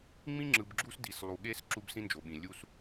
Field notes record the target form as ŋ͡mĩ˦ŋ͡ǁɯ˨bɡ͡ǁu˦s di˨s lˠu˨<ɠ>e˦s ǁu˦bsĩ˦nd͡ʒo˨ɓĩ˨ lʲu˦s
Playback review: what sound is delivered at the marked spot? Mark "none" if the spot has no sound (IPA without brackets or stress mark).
ɠ